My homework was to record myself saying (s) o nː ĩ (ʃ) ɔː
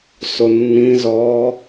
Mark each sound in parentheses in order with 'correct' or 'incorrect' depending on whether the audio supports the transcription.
correct, incorrect: z

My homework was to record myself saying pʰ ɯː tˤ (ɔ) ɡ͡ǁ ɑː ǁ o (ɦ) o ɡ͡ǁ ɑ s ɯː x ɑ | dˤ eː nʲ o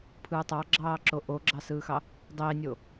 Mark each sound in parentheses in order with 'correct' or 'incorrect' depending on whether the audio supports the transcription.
incorrect: ɑ, incorrect: ʔ

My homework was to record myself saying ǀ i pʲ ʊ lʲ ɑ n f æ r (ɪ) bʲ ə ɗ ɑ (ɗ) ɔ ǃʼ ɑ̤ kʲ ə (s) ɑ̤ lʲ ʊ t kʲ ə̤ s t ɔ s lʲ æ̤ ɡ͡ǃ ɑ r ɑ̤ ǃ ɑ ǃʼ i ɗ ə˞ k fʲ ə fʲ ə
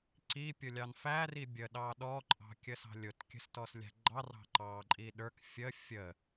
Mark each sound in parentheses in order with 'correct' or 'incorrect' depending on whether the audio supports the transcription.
incorrect: i, correct, correct

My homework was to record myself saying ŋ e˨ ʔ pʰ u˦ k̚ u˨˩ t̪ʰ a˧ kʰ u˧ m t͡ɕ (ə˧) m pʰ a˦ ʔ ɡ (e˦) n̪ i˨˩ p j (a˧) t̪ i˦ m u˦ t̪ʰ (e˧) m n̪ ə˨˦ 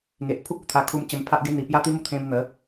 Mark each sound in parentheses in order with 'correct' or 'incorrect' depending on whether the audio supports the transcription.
correct, correct, incorrect: a˦, incorrect: ẽ˧

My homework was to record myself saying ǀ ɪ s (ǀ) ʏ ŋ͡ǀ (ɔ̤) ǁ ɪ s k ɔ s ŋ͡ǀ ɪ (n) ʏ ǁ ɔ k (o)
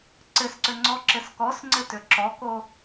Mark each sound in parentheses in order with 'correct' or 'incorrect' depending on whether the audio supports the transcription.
correct, incorrect: ɔ, incorrect: t, correct

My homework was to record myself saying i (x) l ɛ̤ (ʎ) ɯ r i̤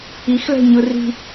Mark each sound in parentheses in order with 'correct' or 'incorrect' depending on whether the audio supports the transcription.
correct, incorrect: ɲ

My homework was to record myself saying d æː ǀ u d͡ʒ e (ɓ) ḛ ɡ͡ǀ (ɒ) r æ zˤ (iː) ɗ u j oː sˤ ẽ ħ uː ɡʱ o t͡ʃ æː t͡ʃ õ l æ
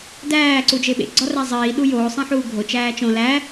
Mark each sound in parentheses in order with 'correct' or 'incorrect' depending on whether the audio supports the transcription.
correct, correct, correct

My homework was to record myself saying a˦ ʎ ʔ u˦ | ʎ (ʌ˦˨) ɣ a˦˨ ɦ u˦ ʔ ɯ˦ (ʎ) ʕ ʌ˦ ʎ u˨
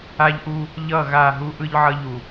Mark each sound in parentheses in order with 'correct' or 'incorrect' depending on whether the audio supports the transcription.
correct, correct

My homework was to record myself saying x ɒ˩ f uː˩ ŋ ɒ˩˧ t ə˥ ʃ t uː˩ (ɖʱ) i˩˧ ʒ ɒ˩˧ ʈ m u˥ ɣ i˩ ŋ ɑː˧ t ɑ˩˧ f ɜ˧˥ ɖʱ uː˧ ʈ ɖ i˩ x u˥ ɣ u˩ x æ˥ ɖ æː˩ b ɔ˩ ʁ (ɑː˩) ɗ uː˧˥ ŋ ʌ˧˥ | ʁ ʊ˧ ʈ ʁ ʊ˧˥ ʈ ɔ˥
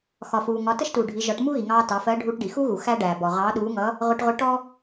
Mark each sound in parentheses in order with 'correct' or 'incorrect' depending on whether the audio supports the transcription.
correct, incorrect: ɑː˧˥

